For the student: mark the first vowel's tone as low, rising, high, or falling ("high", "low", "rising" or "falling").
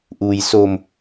low